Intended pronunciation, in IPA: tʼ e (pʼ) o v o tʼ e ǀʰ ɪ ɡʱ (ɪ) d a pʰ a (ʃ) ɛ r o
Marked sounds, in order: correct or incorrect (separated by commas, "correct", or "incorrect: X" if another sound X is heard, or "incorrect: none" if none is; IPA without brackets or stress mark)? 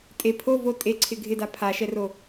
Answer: incorrect: pʰ, correct, correct